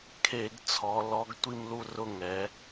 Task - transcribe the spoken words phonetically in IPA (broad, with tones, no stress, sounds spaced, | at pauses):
kʰ e˧˩˧ ɡ t͡sʰ ɔ˩˧ l ɔ˨˥ ɡ tʷ i˥˨ m l u˥˨ r ʊ˥˨ ŋ ɛ˩˧